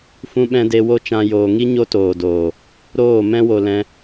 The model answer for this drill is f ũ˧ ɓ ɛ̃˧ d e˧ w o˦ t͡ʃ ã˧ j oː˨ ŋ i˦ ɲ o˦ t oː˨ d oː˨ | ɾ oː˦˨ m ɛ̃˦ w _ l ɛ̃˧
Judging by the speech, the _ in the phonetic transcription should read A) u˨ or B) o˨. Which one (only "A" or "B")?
B